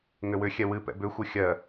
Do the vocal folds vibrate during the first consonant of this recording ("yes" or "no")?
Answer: yes